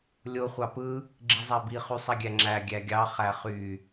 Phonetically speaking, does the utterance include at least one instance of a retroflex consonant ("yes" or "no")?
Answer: no